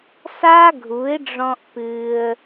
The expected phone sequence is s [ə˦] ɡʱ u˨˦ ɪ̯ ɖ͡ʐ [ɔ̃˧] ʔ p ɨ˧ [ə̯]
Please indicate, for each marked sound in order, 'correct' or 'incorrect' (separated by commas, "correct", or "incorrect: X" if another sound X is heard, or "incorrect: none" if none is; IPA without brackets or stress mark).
incorrect: a˦, correct, correct